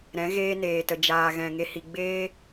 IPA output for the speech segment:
ɾ ɛ̃˨˦ ɣ eː˦ n eː˨ t ə˨ d͡ʒ aː˨ ɣ ɛ̃˨ ŋ e˨ h i˨ ɡ͡b eː˦

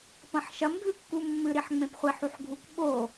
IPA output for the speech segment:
p ɐ̃ ħ ʃ ɐ m ɡʱ ʉ kː u mː ɨ ɾ i ħ ŋ͡m ẽ p χʷ i ħ u ħ ɡʱ u k ɓ o

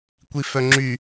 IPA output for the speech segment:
kʷ i f œ ŋ͡ǁ y

